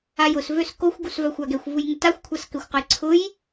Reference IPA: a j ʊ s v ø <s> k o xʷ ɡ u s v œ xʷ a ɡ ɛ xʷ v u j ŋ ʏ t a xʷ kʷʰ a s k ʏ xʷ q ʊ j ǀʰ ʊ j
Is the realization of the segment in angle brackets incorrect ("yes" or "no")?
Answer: no